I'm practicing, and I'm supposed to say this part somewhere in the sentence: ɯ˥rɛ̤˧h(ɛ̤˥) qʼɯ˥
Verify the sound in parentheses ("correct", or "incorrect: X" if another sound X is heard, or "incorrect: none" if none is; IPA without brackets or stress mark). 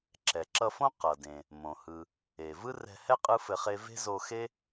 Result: incorrect: ɛ˥